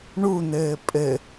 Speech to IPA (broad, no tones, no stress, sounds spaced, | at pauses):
ɳ u n̪ ɘː pʼ ɘ